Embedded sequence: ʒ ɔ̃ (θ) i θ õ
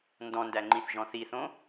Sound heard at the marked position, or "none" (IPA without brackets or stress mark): θ